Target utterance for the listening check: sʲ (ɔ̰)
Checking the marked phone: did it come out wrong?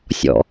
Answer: no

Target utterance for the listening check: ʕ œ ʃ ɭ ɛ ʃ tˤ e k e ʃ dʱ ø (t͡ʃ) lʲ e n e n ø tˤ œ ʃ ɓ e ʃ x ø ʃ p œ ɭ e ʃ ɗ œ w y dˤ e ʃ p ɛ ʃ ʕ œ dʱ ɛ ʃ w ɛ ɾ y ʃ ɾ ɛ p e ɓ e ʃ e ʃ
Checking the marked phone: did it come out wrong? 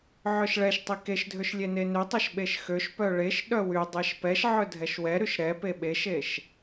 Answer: yes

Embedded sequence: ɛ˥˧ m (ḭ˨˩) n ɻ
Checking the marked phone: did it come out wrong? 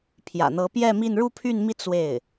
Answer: yes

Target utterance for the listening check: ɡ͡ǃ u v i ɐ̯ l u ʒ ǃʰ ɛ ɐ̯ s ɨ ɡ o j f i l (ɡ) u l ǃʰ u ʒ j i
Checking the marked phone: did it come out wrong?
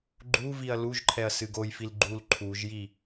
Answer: yes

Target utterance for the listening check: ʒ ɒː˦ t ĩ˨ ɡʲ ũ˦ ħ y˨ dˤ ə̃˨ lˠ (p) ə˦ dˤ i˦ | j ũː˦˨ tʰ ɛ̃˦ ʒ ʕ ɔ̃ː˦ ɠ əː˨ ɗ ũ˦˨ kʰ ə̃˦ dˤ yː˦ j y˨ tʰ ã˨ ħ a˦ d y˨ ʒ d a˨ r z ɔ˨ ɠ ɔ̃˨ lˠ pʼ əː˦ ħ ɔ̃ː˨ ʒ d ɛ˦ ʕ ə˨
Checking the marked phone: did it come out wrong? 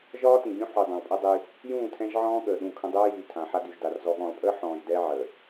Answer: yes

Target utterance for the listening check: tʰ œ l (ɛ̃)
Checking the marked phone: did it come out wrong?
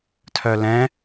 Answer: no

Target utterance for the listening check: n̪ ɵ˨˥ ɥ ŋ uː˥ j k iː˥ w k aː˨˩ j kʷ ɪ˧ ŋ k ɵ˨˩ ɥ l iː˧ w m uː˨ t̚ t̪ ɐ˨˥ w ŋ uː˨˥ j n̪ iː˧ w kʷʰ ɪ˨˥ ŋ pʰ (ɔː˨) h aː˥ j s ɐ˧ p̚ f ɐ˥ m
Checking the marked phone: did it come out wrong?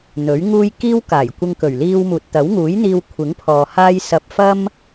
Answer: no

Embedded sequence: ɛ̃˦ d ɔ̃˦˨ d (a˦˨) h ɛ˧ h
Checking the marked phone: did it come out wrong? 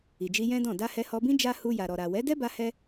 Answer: yes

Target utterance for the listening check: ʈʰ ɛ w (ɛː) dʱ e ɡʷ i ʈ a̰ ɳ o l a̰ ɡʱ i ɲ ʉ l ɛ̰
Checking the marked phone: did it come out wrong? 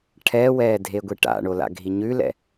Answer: no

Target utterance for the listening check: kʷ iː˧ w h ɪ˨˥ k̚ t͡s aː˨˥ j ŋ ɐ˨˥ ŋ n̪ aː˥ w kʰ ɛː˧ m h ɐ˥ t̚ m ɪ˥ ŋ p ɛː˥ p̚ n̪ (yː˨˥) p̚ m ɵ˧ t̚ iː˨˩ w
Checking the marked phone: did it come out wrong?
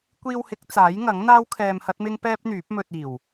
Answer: no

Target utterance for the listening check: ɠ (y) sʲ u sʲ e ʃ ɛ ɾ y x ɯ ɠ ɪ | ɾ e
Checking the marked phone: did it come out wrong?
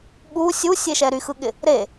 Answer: yes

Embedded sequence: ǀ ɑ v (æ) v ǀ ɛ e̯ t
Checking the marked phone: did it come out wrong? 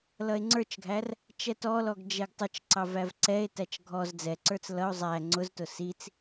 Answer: no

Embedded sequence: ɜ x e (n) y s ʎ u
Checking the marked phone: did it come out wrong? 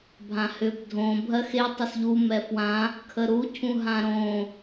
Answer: yes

